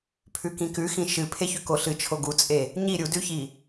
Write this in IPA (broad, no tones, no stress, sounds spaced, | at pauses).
pʰ ʉ k ĩ k ʉ x ĩ ʃ ɨ pʰ e ç ʉ k o ɬ ɨ t͡ʃʰ o ɡ u t͡sʼ e | ɲ i ɾʲ u d ʉ ç i